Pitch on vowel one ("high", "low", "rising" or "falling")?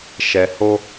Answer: low